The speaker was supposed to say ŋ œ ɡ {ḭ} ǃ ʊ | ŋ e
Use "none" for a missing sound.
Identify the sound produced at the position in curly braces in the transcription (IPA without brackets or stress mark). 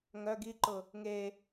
i